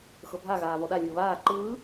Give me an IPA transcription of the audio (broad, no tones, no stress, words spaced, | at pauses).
xɤbʱa ɣaːvɔɗa lʲɯːβaː ǃɯː